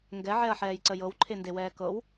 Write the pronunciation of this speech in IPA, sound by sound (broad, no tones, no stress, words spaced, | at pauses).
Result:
ŋɡɛʕɛɐ̯ħɛːjǀə jɤwǃʰendewɛː kɤw